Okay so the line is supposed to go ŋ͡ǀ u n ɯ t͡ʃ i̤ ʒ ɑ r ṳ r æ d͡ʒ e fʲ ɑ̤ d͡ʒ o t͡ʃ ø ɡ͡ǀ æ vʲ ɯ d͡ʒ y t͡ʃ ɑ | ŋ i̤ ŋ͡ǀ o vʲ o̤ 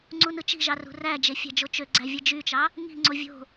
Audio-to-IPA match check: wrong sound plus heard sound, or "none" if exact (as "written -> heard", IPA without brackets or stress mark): none